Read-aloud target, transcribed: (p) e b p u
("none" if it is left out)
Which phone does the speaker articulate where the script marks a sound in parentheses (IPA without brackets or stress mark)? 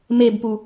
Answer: m